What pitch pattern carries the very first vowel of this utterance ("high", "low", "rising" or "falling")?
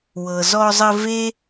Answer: low